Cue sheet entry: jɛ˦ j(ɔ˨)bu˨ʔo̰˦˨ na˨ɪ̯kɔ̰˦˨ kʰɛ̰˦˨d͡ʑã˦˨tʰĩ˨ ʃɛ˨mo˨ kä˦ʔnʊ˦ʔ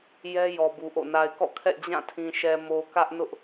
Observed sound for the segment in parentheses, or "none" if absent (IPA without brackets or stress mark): ɔ˨